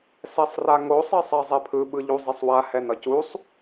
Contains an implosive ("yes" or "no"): yes